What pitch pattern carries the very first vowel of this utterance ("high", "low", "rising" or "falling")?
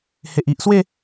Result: low